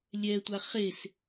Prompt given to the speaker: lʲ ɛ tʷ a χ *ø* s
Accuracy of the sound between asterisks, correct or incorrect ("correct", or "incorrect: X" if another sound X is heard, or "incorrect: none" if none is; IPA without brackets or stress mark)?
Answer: incorrect: e